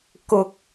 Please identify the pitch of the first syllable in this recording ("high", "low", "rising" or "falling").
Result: high